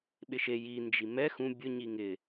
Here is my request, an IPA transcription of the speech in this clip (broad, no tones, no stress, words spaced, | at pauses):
ɓɪʃe jind͡ʒi mɛ xũ bʲʊ ɲiŋɪ